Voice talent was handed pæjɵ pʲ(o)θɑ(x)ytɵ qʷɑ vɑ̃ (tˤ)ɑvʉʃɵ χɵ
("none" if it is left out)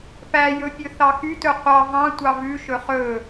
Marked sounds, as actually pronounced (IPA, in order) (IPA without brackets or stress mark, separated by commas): ɵ, x, tʷ